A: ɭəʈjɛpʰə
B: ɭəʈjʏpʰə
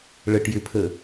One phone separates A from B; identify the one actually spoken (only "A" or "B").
B